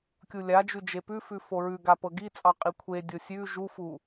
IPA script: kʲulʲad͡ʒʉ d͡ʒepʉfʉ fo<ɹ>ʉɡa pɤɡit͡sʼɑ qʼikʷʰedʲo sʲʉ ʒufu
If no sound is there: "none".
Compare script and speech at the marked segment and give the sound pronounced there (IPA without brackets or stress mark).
ɹ